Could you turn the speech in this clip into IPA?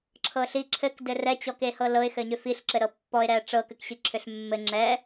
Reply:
ǁʰ ɤ ɬ i ǁʰ ɘ k d ɘ r ɛ t͡ɕ ɔ k e h ɤ l ɤ ɪ̯ x ɘ ɲ ʏ f i ɬ ǁ ɘ ɾ ɤ pː ɔ ɪ̯ ɾ ɛ ə̯ ʈ͡ʂ ɤ k ɘ k ɕ i ǁʰ ʏ ɬ mː ɘ ŋ͡ǁ ɛ

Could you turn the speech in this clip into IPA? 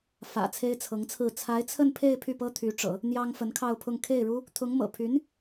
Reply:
f ä̰˨˩ t͡sʰ e˥ ɪ̯ t͡sʰ ɤ˧˥ ŋ t͡sʰ ɹ̩˥˩ t͡sʰ a˧˥ ɪ̯ t͡sʰ ə˥˧ n pʰ e˥˧ ɪ̯ pʰ y˥˩ p ɤ˥ t̪ʰ y˧˥ ʈ͡ʂ ɤ̰˨˩˦ | n̪ j ɑ˥ ŋ f ə˧˥ n kʰ ɑ˥˧ ʊ̯ pʰ ʊ˥˧ ŋ kʰ e˥˩ ɪ̯ ɻ u˥ | t̪ʰ ʊ˧˥ ŋ m ɤ̰˨˩ pʰ y˧˥ n

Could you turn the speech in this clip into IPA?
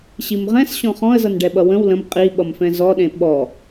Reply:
ɕ i m ʁ ɛ̃ s ɕ ɔ̃ χ ɔ̃ ə̯ z ʌ n ɖ ɛ ɓ ʌ w ə̃ w l ə̃ m qʼ i ɓ ʌ m f ɛ̃ z ɔ ɗ ẽ ɓ ɔ

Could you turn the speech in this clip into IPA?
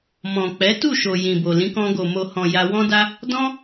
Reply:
m ɔ̃˨ k͡p ɛ˨˦ t u˦˨ ʃ o˨ j ĩ˨ b o˨ l ĩ˨˦ k ɔ̃˧ ɡ o˨ m o˨ h ɔ̃˨ j a˧ w ɔ̃˦ d a˦ | d ɔ̃˦

